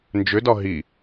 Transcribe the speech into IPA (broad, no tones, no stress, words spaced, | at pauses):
nd͡ʒʏdɒ ɦi